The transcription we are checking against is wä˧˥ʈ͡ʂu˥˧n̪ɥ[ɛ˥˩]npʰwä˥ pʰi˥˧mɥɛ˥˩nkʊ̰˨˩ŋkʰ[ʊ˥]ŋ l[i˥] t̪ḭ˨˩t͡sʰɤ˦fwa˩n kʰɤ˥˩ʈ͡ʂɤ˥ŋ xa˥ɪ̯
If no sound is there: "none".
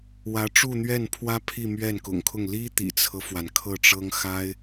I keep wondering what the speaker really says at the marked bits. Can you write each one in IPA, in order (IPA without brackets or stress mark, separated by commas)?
ɛ˥˩, ʊ˥˩, i˥